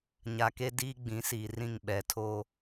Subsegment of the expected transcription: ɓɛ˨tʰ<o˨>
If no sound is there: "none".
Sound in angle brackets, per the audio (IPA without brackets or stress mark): o˦